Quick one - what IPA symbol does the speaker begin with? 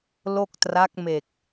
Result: l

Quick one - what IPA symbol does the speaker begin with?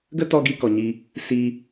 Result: ɡ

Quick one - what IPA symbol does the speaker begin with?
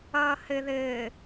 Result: ʌː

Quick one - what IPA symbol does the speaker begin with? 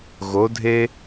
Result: ɣ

